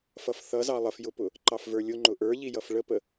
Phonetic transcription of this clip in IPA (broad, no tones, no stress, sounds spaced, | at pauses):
f ʌ f θ ʌ z ɑ lˠ ə f j ʊ p ʊ | ǃ ɑ f v ə˞ lʲ ʊ ŋ͡ǃ ʊ ʔ ə˞ ʎ i j ʌ f ɭ ə p ə